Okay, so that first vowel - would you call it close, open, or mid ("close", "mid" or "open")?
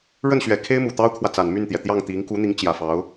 mid